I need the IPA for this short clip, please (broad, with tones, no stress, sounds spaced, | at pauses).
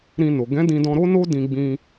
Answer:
ɾ ĩ˧ n o˨ ɡ ɛ̃˨˦ d ĩ˧ d ɔ̃˧ ɾ o˦ n o˦ d ĩ˧ ɡ͡b ĩ˧